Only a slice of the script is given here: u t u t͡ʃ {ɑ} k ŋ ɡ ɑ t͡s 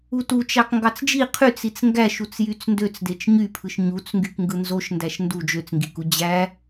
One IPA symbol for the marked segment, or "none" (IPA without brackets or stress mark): ɑ